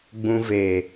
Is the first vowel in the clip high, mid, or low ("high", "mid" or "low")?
high